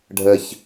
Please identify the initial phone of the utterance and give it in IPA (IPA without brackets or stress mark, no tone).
ɖʱ